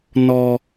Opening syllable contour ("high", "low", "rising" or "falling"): high